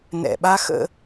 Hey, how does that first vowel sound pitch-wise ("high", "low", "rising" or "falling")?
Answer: low